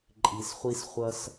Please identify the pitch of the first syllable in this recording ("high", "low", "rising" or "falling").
low